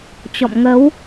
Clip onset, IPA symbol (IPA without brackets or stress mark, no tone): t͡ɕ